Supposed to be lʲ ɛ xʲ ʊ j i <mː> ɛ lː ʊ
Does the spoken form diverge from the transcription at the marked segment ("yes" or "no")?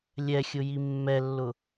no